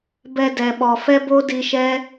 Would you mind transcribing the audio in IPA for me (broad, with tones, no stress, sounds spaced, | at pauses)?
b ɛ˧ d ɛ˨ ɓ ɔ˨ f ɛ˦ b o˦ d i˧ ʃ ɛ˦